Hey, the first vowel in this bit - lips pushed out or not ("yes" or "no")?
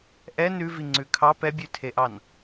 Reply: no